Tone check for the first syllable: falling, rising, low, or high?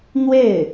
falling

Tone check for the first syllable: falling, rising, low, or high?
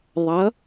rising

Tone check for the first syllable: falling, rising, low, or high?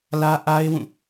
high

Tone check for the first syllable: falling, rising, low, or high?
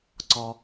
high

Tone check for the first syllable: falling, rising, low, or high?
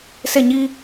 falling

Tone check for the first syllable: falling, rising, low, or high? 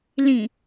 low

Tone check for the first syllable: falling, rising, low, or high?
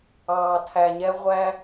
low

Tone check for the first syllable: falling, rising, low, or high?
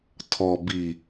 low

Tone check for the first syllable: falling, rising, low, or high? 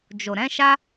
low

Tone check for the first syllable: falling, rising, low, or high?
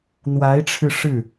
rising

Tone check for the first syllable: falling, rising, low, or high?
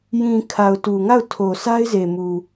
low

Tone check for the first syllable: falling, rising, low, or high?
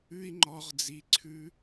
high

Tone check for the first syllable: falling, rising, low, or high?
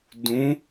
rising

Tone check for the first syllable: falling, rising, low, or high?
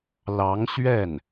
rising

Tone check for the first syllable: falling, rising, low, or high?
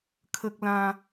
high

